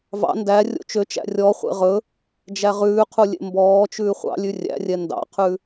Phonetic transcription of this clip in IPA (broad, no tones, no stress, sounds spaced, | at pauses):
v ɑ̰ n d æ rʲ o̰ t͡ʃ ø t͡ʃ æ̰ rʲ ɔ χʷ ḛ ʁ ɵ | d͡ʒ æ ʁ ʉː qʰ u lʲ ḛ m b ɔː t͡ʃ ʉː χʷ ɑ̰ lʲ ʉ rʲ æ̰ rʲ ɛ n d ɑ̰ qʰ ʉ